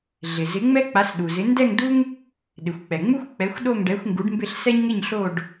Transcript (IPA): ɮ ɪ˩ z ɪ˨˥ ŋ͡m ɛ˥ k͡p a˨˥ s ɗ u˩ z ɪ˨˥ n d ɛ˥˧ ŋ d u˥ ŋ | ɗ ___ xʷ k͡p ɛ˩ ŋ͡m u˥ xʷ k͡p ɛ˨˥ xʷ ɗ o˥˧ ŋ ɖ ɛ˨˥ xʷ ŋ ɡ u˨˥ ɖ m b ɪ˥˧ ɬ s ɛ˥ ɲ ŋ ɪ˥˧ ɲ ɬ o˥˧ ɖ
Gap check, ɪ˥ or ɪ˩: ɪ˩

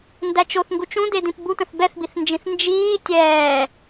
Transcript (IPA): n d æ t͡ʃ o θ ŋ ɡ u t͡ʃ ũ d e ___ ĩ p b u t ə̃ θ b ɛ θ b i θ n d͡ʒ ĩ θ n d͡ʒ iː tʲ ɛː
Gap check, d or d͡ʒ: d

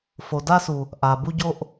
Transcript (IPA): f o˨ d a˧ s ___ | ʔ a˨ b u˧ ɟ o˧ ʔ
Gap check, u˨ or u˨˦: u˨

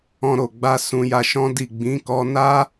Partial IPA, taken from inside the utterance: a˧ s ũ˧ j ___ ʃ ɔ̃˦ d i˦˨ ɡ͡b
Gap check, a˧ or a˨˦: a˧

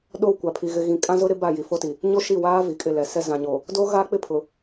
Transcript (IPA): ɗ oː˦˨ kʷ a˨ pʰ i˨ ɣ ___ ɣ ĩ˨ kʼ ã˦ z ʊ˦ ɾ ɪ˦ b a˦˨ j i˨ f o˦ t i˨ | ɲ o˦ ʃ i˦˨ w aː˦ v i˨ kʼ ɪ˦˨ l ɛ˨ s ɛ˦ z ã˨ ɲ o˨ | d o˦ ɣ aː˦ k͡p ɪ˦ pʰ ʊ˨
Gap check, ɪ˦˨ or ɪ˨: ɪ˨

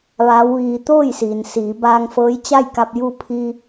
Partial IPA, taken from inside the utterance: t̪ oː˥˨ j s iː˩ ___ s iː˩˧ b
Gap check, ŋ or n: n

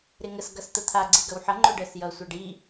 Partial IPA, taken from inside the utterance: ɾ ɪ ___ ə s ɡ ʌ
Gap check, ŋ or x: ŋ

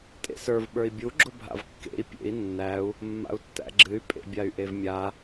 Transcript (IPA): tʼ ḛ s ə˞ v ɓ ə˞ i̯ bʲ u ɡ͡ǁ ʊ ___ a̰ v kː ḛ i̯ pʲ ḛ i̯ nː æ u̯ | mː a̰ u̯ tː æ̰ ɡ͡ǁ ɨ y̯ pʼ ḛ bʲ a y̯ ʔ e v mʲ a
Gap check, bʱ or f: bʱ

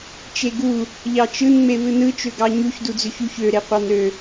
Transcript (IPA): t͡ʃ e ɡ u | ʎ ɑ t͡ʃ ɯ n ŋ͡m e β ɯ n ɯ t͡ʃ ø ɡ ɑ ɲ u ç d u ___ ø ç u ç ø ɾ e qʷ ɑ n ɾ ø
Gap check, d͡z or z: d͡z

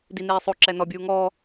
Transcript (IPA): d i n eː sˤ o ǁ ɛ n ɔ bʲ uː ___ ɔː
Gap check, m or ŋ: ŋ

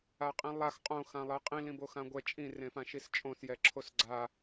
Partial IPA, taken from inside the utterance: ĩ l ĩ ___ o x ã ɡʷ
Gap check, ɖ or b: b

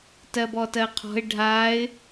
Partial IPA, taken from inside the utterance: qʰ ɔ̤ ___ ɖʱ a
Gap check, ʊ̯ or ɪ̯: ɪ̯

